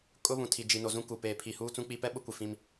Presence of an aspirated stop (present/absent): present